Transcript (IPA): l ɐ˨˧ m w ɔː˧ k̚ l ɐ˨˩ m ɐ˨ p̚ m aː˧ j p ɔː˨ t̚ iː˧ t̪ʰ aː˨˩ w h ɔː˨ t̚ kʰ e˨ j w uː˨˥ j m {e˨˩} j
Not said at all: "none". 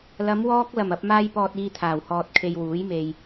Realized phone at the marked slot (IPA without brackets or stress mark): e˨